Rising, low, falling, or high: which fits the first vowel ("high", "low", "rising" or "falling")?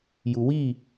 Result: low